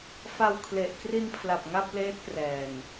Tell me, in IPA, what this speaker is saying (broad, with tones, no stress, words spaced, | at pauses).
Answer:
fa˧w kʰle˨˩ʔ kri˧npʰla˨˩p̚ ŋa˥˩p̚leː˦˥t̚ prɛː˨˩n